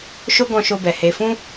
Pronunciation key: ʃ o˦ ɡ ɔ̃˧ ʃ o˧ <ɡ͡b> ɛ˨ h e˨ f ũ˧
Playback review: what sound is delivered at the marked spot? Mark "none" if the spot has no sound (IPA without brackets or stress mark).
b